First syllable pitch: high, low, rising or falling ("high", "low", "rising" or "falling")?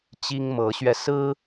high